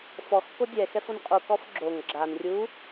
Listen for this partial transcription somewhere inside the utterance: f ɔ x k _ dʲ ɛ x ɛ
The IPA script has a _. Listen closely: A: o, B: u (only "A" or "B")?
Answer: A